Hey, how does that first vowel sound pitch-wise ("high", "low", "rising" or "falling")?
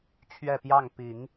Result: falling